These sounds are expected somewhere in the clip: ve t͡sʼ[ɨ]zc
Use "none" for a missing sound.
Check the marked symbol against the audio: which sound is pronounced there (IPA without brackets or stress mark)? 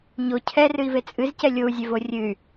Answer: ɨ